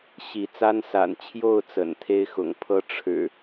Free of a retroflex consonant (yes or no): no